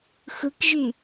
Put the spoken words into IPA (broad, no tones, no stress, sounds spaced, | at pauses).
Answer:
x ɯ k ʒ y